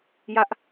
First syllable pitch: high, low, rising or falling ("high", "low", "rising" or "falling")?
high